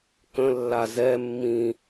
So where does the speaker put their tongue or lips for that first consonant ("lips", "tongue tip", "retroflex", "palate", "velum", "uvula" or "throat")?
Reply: velum